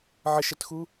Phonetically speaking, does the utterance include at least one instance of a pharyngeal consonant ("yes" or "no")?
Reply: yes